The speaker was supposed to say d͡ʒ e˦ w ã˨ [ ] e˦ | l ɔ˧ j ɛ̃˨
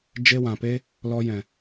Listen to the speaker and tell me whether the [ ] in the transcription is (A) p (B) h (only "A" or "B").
A